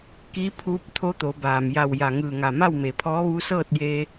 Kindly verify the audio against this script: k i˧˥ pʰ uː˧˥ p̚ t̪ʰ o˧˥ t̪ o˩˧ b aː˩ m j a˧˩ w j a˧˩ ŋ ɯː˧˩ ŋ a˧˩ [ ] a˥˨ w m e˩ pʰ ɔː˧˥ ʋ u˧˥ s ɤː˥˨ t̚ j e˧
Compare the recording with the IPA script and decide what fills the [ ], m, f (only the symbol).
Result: m